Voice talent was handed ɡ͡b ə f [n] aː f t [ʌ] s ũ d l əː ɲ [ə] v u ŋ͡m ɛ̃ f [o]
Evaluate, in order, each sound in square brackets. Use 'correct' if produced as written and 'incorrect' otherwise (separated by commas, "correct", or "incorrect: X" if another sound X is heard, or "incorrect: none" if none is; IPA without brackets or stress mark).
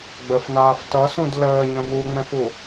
correct, correct, incorrect: ə̃, incorrect: u